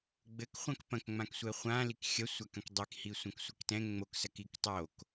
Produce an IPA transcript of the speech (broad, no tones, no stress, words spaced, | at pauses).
ɡ͡bɘkχʷãk pɐ̃kŋ͡mãksʷɛ χʷã likxʲɐsʷak ɐ̃kdˤikhi sʷɐ̃ksʷɘktɛ̃ ŋ͡moksɐk iktˤok